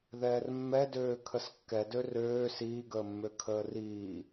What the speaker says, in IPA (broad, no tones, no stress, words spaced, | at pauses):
ðɛːrmːɛdøː kʰəskːɛdø røː siːɡəːmːø kʰəːriː